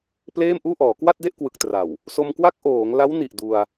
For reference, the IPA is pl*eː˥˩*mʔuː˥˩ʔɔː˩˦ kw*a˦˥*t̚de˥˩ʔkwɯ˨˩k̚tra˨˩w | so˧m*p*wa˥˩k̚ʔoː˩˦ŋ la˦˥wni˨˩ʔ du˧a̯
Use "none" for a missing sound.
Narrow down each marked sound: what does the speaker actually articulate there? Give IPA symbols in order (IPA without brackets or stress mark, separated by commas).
eː˥˩, a˥˩, k